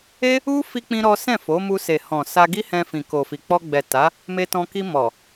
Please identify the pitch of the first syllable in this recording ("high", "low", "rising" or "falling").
high